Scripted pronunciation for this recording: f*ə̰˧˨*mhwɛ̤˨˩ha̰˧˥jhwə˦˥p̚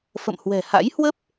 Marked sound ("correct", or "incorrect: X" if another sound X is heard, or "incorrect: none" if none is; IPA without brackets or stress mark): correct